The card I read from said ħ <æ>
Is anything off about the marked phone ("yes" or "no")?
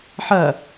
yes